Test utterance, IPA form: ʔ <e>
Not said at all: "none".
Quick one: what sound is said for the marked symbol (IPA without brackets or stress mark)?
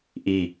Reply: i